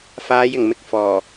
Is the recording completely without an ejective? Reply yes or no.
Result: yes